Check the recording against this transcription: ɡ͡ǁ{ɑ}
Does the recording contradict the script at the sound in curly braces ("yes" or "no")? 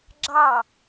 no